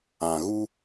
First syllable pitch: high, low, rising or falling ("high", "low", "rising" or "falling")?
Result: low